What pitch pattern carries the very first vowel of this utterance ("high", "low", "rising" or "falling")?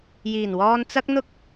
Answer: low